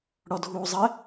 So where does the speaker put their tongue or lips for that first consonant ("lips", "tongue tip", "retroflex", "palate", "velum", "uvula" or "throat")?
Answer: retroflex